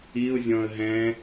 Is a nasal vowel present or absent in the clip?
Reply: present